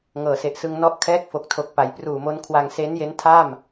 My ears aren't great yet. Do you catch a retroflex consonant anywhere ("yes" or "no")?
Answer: no